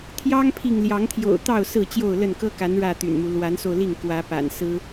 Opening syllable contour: high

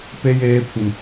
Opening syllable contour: high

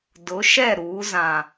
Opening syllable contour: rising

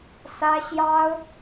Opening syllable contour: high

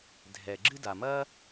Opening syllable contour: low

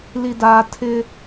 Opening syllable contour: low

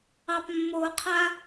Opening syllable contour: low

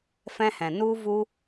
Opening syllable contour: high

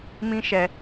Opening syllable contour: high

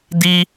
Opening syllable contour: high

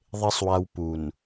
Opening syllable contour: low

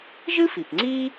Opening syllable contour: high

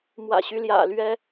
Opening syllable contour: low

